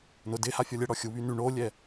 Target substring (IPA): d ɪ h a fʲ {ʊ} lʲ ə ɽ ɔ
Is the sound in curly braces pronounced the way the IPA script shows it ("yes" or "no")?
no